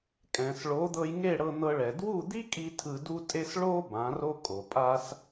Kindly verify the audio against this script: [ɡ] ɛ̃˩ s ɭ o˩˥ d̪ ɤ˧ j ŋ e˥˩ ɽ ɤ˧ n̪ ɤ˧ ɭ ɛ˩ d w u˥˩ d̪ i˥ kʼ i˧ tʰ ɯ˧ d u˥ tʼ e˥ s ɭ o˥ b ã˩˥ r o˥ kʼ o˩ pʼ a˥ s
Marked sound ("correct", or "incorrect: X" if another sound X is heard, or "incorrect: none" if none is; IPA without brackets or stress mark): incorrect: kʼ